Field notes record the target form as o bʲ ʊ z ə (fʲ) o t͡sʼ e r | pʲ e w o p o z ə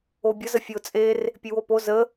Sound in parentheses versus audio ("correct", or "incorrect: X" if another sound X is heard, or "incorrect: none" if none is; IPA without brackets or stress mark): correct